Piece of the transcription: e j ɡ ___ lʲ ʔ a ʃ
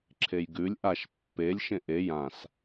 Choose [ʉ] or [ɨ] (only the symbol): ʉ